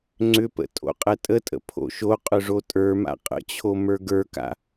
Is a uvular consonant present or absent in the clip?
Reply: present